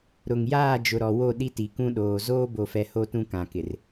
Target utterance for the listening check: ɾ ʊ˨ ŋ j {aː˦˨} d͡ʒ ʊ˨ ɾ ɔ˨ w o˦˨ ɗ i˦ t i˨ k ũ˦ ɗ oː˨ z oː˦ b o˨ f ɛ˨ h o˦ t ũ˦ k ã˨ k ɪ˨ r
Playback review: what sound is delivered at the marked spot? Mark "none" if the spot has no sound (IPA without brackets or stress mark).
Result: aː˦˨